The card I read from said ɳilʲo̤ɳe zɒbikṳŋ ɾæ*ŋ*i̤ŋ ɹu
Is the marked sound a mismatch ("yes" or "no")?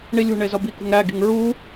yes